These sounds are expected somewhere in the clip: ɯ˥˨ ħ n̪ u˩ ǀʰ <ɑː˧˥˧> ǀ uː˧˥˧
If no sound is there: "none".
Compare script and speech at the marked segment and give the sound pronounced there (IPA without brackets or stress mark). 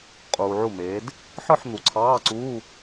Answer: ɑː˧˥˧